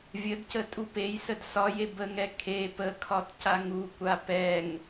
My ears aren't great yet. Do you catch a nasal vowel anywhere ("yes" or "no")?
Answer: no